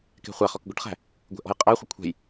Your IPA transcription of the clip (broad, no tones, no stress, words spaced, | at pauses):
kɛ̤χʷæχɔk ɡʷəʈχæ̤ | ɡʷɛ̤ʔɔ̤jqʼæχʷə kʷʰɛ̤j